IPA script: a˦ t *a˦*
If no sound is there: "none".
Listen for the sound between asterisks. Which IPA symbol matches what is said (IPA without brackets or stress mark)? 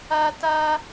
a˦